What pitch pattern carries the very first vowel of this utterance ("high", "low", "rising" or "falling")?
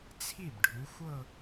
falling